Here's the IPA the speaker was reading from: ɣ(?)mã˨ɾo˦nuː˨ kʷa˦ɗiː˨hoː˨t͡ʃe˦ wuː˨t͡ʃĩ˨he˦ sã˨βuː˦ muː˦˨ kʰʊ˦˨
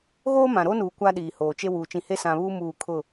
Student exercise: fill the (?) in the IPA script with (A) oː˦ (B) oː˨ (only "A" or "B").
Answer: A